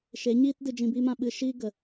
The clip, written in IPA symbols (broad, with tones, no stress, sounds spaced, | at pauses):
ʃ e˨˦ ɲ iː˦ t d ɨ˧ d͡ʒ ĩ˧ b iː˦ m ã˧ ɓ ɨ˧ ʃ iː˦ ɡ ə˨